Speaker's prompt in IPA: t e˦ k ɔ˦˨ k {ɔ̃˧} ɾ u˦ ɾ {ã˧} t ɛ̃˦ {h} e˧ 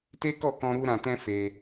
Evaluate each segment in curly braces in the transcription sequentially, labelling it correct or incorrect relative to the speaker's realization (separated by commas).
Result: correct, correct, incorrect